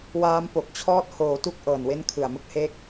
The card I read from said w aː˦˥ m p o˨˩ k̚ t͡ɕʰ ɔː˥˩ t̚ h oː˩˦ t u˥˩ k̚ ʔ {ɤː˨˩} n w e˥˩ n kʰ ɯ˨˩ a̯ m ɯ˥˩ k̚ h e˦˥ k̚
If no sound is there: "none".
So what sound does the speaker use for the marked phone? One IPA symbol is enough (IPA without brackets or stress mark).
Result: ɤː˨˩